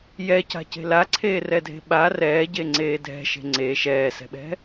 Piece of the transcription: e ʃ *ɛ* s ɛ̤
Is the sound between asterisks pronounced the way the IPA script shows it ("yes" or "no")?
no